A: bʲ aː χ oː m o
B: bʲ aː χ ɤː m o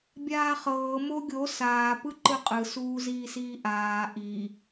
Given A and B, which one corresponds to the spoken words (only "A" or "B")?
B